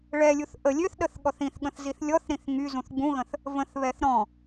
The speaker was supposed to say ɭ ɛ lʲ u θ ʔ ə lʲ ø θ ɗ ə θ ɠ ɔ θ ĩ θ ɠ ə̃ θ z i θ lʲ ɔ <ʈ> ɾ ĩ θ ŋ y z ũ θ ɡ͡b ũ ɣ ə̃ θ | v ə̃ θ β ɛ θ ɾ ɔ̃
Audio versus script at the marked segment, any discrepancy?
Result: yes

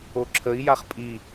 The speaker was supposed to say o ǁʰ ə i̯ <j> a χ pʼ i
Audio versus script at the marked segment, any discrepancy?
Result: no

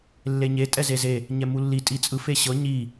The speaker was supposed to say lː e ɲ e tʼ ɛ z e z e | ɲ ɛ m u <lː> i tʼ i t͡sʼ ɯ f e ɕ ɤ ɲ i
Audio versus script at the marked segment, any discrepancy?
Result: no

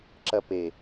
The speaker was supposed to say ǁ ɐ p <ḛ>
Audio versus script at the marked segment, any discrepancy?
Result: yes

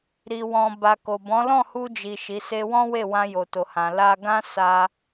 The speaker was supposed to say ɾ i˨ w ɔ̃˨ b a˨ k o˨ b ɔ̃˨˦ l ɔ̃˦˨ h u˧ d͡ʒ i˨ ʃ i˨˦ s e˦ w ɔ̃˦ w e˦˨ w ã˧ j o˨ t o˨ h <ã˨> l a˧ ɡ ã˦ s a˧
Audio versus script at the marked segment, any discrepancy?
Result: no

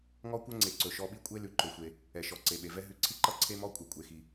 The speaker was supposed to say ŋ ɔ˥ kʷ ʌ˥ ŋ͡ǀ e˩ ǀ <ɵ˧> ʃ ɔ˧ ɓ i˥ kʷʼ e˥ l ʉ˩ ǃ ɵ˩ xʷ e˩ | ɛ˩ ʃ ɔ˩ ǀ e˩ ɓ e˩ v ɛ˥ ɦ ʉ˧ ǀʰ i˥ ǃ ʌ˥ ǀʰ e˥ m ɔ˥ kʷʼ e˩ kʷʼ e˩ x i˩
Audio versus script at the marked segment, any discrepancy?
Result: yes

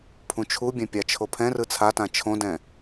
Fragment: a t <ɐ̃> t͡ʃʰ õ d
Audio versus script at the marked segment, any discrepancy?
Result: yes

